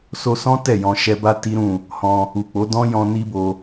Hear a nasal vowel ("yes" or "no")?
yes